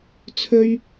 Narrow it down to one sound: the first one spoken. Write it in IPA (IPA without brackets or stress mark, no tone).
t͡sʰ